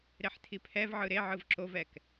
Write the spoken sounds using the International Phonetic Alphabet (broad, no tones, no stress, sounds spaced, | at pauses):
ɾ e ħ tʰ i pʰ ɛ v ʕ ɯ ɾ e ʕ ɯ v ǁ o v ɛ k